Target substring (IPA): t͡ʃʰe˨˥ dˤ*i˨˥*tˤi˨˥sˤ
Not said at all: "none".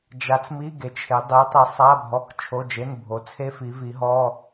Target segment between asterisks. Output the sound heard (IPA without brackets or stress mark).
i˨˥